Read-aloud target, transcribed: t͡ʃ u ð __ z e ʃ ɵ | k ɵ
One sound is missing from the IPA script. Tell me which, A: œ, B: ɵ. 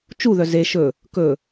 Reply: A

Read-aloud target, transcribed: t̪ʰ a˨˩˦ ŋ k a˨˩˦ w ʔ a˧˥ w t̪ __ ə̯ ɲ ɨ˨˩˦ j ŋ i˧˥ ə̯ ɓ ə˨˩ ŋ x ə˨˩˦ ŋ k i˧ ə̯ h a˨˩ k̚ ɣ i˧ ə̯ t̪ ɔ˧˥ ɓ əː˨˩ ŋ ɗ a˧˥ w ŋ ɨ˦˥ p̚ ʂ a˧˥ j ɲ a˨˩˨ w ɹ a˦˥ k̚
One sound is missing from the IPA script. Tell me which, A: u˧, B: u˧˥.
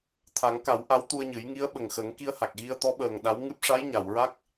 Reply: A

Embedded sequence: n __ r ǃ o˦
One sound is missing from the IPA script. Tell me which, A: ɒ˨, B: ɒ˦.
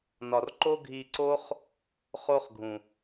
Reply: A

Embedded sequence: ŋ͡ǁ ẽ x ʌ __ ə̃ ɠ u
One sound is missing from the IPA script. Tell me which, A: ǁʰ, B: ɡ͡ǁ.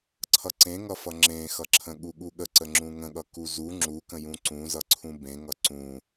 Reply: A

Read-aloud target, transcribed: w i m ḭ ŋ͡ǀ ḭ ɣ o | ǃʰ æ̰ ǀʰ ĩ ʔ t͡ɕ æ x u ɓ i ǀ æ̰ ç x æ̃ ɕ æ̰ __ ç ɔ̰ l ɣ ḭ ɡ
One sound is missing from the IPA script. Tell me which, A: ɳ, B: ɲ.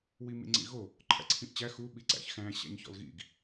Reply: B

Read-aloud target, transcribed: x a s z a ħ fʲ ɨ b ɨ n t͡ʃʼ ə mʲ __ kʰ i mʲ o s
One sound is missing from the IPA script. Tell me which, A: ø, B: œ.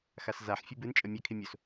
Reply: B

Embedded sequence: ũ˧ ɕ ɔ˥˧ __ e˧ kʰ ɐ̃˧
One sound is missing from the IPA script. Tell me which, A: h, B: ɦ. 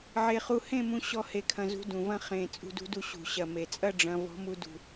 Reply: A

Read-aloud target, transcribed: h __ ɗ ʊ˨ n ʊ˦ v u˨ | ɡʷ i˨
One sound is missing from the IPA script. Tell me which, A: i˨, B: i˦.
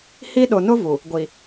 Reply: B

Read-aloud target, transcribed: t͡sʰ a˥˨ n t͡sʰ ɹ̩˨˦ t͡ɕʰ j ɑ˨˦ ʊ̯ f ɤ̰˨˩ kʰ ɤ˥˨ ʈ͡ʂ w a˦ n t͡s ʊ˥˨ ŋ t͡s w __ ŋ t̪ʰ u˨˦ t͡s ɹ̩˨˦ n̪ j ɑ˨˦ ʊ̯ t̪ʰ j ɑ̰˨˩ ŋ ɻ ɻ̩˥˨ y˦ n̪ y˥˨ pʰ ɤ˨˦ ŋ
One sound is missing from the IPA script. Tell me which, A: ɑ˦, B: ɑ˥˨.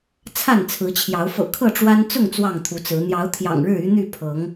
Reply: B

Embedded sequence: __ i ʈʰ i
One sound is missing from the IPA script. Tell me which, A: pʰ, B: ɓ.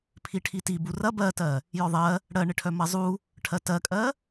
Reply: A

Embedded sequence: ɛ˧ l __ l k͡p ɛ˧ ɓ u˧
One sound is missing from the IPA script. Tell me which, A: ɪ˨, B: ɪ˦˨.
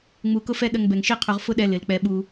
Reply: A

